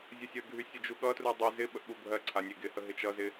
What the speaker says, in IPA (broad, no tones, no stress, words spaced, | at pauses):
zʲʌsʲəɡʱy sʲəd͡ʒuɠʌtru dˤy zɪ ɓəʔɠubʱɜǀʰa nʲeɡɪhə ɦɪt͡ʃʌzɪ